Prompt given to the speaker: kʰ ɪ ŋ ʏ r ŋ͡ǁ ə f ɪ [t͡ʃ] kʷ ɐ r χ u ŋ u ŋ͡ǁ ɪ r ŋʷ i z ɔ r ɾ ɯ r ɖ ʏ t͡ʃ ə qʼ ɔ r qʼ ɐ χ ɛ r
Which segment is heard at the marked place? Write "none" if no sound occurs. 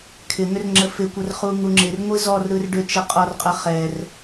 none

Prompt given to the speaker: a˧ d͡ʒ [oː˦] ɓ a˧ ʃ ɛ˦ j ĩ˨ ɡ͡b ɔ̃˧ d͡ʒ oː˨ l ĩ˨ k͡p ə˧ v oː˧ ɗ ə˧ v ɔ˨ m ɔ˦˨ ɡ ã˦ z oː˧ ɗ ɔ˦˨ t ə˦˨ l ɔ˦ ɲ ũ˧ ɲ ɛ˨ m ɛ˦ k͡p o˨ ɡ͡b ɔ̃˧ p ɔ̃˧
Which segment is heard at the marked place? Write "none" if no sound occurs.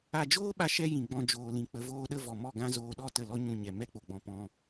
oː˦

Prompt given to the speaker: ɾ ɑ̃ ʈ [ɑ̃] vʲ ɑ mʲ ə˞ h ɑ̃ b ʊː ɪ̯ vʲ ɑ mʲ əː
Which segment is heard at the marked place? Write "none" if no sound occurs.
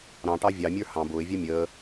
ɑ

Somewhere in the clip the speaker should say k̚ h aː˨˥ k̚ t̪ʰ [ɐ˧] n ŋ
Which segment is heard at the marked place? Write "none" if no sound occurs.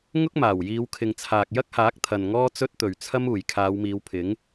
ɐ˨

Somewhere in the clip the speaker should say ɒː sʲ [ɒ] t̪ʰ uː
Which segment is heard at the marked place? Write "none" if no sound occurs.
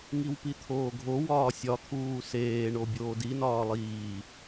ɒ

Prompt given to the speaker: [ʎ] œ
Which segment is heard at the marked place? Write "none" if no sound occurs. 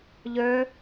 ʎ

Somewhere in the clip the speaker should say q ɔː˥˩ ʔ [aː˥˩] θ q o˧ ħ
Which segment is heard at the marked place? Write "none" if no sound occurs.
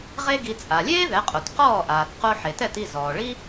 aː˩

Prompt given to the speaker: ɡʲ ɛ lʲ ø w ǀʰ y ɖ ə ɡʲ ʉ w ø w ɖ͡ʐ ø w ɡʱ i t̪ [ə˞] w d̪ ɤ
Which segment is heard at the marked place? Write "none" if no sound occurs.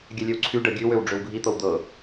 ɤ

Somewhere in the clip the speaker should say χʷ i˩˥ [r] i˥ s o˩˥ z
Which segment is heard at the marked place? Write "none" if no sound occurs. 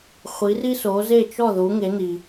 r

